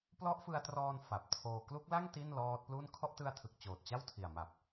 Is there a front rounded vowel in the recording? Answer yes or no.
no